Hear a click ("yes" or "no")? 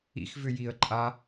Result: yes